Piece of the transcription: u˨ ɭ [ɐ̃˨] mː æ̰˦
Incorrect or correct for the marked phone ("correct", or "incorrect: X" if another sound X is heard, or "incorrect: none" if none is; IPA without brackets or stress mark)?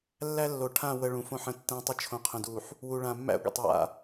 incorrect: ã˨